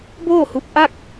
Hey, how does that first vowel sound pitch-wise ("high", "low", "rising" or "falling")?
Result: falling